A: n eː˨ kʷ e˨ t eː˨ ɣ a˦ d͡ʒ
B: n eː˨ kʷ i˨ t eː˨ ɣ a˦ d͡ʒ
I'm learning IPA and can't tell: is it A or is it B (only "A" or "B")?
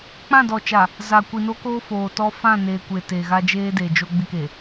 A